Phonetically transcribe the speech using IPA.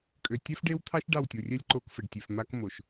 kʼø˨tʲɛ˦fɖe˦wt̪ʰɑ˦ʃ ɖɑ˦˨wtʲo˨rʲɛ˦lʲ ǃo˦kfə˨ɖtʲe˨f ma˦kmo˨ʃ

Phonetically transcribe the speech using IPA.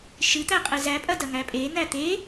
ʃɨt̪æqʼɨ zæpʼɐdɐŋæ pʼen̪æ t̪e

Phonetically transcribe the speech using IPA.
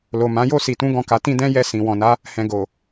lo˨mã˨˦ jo˦˨si˨tũ˨˦ ɡɔ̃˦˨ka˨˦ tĩ˦dɛ̃˦jɛ˦˨ sĩ˨ wɔ̃˨na˨˦ | hɛ̃˨ ɡo˨

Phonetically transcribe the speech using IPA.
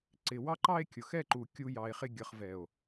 ǀɪ˨wɑ˦ǃɑ˦e̯ kʲʊ˨xɛ˦˨ǃu˨ kʲu˧jɑ˨e̯χɪ˧ ɡʲʌ˨χvɛ˨o̯

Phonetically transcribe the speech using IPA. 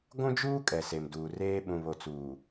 ɡʷũ˦d͡ʒuː˦ kʼɛ˨se˨mduː˨reː˦ ɓũ˨βo˨t͡suː˨

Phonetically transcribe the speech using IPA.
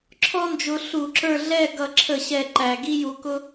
ǁʰɔ˥nd͡ʒʊ˧ ɬu˧˩˧ǁə˞˥˨ ɮɛ˥˨ ɡʌ˨˩ǁʰə˧˩˧ɕɛ˨˩ ǃæ˨˩ɡi˥ju˧kʊ˥

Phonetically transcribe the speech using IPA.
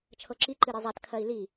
t͡ʃʰɤǁi ǃɨɾezˤat kʰɜi̯li

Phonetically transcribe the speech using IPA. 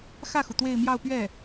xä˥˩xu˩ t̪we˥˧ɪ̯mjɑ˥˧ʊ̯pɥɛ˥˩

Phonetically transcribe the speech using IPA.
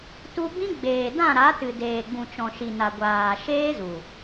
tu˧ bĩ˦ ɡ͡beː˨ dã˦˨ɾa˨˦tɨ˨ deː˨ɡ͡bũ˨t͡ʃɔ̃˨ ʃi˨na˨ ɡʷaː˨ ʃeː˦zu˨

